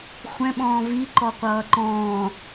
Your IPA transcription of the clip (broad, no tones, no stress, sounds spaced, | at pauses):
χʷ ɛ̃ ɓ ɔ̃ː v i ǃ ɔ qʷ ʌː ǃ ɔ̃ː